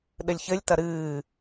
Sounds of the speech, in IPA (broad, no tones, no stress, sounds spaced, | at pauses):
ɗ ɘ lʲ ç ɘ lʲ t ɐ ɾ ɨː